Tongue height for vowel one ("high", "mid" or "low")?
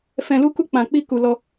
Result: mid